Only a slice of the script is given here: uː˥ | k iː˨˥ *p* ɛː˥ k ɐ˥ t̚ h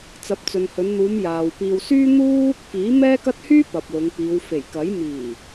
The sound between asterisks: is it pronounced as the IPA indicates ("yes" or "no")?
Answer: no